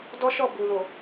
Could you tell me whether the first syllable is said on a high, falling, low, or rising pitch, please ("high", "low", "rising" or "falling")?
high